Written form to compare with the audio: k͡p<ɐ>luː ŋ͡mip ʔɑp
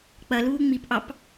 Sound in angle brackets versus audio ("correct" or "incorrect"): correct